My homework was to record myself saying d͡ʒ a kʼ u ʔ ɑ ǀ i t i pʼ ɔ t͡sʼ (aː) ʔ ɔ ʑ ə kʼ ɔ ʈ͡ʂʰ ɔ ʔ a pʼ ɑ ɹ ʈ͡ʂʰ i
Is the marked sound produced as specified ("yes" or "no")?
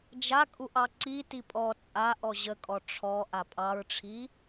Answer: no